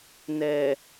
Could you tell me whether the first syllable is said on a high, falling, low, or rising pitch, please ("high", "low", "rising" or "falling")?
low